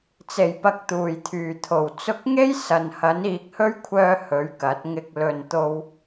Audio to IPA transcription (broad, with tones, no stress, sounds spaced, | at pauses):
t͡s e˨˩ j p ɐ˨ k̚ t̪ uː˨˩ j t̪ʰ yː˨˩ t̪ʰ o˨˩ w t͡s ʊ˧ k̚ ŋ e˥ j s ɐ˨ n h ɐ˨˥ n iː˨ k̚ h ɵ˥ ɥ kʷʰ œː˧ h ɵ˨˥ ɥ k ɐ˨˥ t̚ ŋ ɪ˧ k̚ l ɵ˨ n t̪ o˧ w